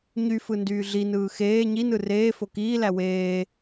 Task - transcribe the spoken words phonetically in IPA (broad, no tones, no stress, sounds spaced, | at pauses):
ɲ y f ɯ n d yː ɮ i n ɯː x eː ɲ i n ɯ r eː f o k iː l æ w eː